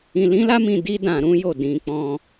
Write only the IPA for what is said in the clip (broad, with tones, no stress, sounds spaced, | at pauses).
ĩ˧ l ĩ˦ l a˦ m ĩ˧ d i˦ d ã˧ ɾ ũ˦ j o˦˨ d ĩ˧ k͡p ɔ̃˧